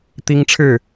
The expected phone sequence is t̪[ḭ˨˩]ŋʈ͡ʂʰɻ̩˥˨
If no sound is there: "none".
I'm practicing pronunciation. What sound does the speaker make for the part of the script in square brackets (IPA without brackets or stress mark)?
i˦